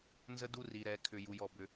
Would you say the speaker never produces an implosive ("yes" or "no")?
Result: yes